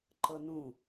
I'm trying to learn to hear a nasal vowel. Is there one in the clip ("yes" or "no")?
yes